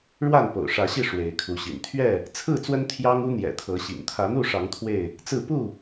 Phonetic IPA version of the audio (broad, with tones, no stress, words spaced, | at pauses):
ɻwa˥˨npo̰˨˩ʊ̯ ʂä˨˦ɕi˥˨ ʂwe˨˦ɪ̯kʰu˨˦ɕḭ˨˩n t̪ʰɥɛ˥˨ | t͡sʰɹ̩˥˨t͡swə˦n t̪ʰjɑ˦ŋu˦n̪jɛ̰˨˩ t̪ʰɤ˨˦ɕḭ˨˩ŋ t̪ʰä˨˦n̪u˥˨ʂɑ˨˦ŋ t̪ʰwe˥˨ɪ̯ | t͡sɹ̩˥˨ pu˥˨